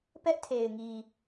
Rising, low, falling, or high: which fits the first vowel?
high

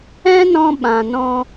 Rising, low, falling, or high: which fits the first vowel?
high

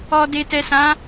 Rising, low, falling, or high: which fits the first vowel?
low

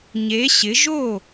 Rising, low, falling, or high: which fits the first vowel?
rising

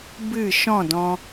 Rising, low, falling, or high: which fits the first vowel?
falling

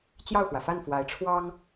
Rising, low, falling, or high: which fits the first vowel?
falling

